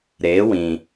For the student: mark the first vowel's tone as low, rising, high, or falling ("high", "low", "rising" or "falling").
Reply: rising